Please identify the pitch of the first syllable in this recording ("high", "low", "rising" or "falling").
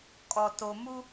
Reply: low